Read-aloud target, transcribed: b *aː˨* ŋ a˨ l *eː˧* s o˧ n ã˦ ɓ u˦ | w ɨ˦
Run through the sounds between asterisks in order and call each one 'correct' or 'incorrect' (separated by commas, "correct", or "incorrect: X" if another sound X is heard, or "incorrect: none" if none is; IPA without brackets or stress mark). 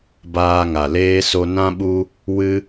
incorrect: aː˧, correct